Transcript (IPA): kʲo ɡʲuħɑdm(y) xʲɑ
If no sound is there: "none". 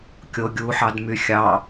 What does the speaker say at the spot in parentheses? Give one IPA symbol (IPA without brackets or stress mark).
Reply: y